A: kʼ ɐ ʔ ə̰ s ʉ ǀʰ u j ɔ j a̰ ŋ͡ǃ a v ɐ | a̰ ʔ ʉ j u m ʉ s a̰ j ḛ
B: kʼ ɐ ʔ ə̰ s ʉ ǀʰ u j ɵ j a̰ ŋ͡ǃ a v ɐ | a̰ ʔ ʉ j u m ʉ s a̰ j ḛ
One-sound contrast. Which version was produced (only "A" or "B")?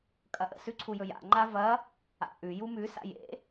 B